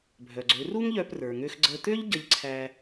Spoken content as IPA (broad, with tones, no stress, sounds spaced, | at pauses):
bʱ œ˩ ɡ͡ǀ ø˩˥ r u˥ ŋ ʎ œ˧ p r ə˞˩ ŋ ø˧ x ɡ͡ǀ ə˧ t̪ ø˥ ʎ ɟ ə˧ ʎ ǀʰ æ˧